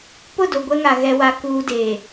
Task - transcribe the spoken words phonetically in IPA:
pʊ˦˨do˨ ɡʷɛ˦ŋa˨ ɣɛ˦wa˦kuː˦ deː˨

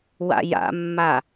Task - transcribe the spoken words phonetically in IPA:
wa̰ja̰mːa

